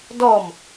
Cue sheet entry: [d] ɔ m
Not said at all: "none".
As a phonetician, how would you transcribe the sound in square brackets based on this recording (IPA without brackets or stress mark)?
d